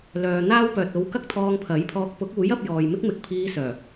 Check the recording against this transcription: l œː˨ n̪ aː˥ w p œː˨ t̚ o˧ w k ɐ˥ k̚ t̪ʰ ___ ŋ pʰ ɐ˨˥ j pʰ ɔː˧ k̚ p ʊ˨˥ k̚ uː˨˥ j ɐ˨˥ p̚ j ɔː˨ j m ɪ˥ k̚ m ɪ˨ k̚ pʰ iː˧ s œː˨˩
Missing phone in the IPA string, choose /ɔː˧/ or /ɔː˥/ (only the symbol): ɔː˧